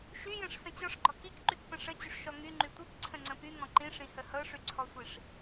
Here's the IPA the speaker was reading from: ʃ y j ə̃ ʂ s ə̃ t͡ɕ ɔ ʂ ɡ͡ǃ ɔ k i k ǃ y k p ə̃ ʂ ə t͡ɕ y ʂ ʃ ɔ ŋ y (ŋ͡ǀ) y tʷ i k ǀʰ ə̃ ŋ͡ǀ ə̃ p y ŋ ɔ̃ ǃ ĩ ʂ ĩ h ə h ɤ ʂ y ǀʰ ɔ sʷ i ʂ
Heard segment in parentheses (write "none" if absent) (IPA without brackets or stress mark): ŋ͡ǃ